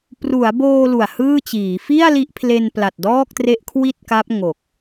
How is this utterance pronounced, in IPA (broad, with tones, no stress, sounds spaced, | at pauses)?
p r u˩˦ a̯ b oː˧ l u˨˩ a̯ h ɯː˥˩ t͡ɕ iː˩˦ f i˥˩ a̯ l i˦˥ ʔ pʰ l e˧ n p l a˨˩ t̚ d ɔː˥˩ k̚ t r e˦˥ ʔ kʰ w i˥˩ t̚ k a˦˥ p̚ ŋ o˨˩ k̚